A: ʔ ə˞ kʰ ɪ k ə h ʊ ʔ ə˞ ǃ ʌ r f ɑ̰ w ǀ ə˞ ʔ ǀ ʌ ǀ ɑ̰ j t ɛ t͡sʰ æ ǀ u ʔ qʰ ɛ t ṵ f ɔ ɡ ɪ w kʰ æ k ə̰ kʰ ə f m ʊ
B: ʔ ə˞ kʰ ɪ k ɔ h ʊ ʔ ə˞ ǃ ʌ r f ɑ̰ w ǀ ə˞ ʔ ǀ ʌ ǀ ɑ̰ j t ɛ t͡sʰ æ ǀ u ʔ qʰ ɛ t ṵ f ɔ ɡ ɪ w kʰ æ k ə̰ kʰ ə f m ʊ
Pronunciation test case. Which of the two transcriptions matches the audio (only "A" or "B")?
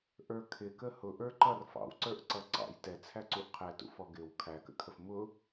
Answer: A